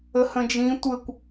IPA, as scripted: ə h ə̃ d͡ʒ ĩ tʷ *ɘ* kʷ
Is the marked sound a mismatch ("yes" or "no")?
no